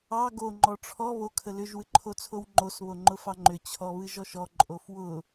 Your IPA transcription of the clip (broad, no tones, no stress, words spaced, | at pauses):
ɑ ɡo ŋ͡ǃɔʈ͡ʂʰɔ βo kʰəlʏʒ wɨǃʰot͡sʰowŋ͡ǃos βoŋ͡ǃʊfɑŋ͡ǃʏ t͡ɕʰɔβɨʒɔʃɔ ǃʼofwʊ